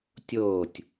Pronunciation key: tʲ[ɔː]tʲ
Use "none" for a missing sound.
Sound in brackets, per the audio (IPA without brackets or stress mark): oː